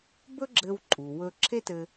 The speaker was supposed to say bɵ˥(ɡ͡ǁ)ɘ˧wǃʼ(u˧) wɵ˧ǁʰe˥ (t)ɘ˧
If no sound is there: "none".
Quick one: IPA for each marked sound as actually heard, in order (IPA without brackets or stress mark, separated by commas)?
ɡ͡ǁ, u˩, t